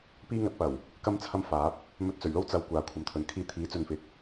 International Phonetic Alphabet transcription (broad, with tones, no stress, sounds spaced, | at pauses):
p iː˥ ŋ ɐ˨˥ t̚ p ɐ˨˩ w | k ɐ˥ m t͡sʰ ɐ˥ m f aː˨˥ p̚ | m ɵ˧ t̚ t͡s ɵ˨˩ ɥ l o˥ w t͡s ɐ˨ w kʷ aː˨ kʷʰ ɐ˨˧ m t̪ʰ ɵ˨ n kʰ iː˥ t̪ʰ iː˨˥ t͡s ɵ˨ n f ɪ˨ k̚